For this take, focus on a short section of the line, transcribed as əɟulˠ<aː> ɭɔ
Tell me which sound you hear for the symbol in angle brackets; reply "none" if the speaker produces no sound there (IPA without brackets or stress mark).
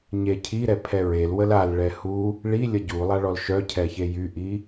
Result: a